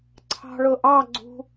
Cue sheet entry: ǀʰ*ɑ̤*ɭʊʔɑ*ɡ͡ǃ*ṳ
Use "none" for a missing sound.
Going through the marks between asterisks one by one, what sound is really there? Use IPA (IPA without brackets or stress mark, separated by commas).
ɑ̤, ɡ͡ǀ